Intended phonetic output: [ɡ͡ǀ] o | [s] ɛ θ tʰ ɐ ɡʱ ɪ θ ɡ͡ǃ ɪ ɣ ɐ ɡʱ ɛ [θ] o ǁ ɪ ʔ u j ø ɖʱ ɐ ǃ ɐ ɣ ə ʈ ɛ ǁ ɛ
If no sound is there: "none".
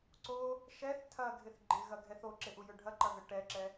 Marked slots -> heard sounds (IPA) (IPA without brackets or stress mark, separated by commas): ǀ, ʃ, θ